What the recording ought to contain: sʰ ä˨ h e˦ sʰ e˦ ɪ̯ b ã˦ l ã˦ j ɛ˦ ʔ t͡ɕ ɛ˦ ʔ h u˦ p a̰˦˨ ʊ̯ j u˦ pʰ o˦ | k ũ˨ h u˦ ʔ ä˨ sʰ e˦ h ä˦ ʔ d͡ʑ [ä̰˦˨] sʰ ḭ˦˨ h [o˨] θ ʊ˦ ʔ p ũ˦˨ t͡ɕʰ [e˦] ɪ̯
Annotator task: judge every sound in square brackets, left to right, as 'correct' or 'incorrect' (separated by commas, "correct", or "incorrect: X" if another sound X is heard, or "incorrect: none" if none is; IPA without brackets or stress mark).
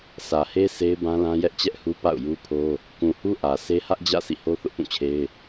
correct, incorrect: o˦, correct